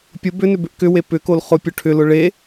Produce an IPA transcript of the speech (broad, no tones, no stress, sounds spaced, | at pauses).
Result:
pʲ ʊ b ʏ n ʏ b ʏ ʔ k ʏ w e p ʏ k o l χ ʊ pʲ ʊ ʈʰ ʏ l ʊ ɭ e